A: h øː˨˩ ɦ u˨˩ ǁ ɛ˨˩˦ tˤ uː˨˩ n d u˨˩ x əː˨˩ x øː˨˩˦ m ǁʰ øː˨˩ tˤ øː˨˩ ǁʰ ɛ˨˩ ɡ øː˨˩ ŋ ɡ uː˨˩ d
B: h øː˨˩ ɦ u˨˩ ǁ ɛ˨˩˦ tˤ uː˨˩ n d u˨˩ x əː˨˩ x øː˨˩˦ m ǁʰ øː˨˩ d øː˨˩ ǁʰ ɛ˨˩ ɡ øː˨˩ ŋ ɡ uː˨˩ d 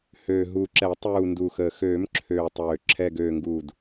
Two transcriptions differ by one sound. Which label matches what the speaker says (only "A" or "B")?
A